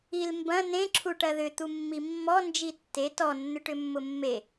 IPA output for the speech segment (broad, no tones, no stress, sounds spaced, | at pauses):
i l m b ɐ̃ n ẽ ǁʰ u ʈ ɐ ð ʏ t̪ u mː i mː ɔ n d͡ʒ i tː e t ɔ nː ʏ ʈ ʏ mː ʊ mː e